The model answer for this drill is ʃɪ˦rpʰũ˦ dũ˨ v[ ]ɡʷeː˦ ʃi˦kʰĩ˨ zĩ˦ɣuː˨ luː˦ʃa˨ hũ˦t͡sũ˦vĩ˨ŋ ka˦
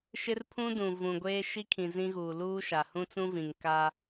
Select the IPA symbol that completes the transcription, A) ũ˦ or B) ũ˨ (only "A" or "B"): B